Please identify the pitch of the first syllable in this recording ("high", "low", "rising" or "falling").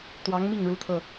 rising